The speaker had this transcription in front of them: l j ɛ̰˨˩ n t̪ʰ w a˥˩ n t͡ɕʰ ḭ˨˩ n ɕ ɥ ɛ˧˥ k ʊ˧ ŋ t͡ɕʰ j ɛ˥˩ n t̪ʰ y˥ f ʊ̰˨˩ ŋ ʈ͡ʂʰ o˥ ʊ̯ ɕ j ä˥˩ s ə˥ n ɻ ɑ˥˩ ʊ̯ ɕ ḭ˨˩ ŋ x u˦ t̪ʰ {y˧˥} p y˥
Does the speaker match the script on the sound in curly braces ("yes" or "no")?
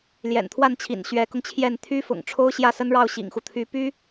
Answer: yes